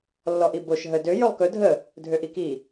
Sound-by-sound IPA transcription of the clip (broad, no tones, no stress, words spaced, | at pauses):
lːɔʔiboʃ ɦə dø jɵlˠkɵ dʱə | dʱøʔiki